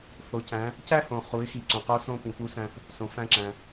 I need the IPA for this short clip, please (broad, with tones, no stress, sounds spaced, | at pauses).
θ o˩˧ c æ̃˩˧ | c æ˥ h õ˩ χ u˩˧ ɪ̯ x i˩ ǀ õ˩ q o˧˥ s õ˧ p ĩ˩ p u˧˥ s æ̃˧ θ | s õ˩ f æ̃˧ ǁ æ̃˩